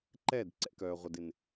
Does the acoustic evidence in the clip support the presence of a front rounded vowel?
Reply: yes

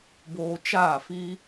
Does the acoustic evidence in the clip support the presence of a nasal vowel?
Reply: no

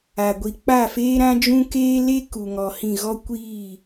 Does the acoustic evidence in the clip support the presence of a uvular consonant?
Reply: no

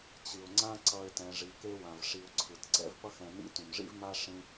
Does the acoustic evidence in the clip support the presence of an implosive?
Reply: no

